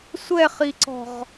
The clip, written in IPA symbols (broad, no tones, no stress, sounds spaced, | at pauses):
sʷ ɛ χ i ǀ ɔ̤ ʁ